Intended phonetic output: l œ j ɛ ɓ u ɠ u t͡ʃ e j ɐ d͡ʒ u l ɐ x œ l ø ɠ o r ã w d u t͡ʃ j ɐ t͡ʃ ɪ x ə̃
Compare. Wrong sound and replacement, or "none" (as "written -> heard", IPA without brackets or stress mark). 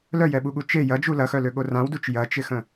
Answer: none